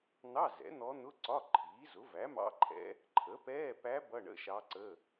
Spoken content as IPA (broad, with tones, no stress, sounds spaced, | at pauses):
n̪ ɑ˧˥˧ z ɛ̰˩˥ n̪ ɔ˧˥ n̪ ʊ˧˥˧ ǀ ɒ˧˥˧ ǃʰ iː˩˥ z ʊ˩˥ v æ˩˥ m ɑ̰˧˥˧ ǃʰ ɛ̰˧˥ | ǃʰ ə˩˥ p ɛː˧˥˧ p æ˧˥ b ʌ˧˥˧ ɳ ə̰˧˥˧ ʃ ɑ˧˥ ǀ ə˧˥˧